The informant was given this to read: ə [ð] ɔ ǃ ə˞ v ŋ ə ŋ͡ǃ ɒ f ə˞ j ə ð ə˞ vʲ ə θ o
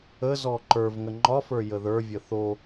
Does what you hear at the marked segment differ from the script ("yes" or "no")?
yes